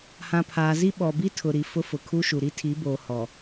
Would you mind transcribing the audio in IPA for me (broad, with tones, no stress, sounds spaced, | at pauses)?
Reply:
h ã˨ pʰ aː˨ z i˦ ɓ ɔ˨ b i˦ tʰ ʊ˨ ɾ i˨ f ʊ˦ f ʊ˨ kʰ u˦ ʃ u˨ ɾ i˦ tʰ i˨˦ b oː˨ h ɔ˨